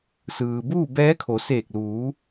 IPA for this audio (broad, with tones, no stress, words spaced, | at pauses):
sɯː˩buː˥˨ bɛː˧˥kʰo˩˧ seː˧˩k̚luː˩˧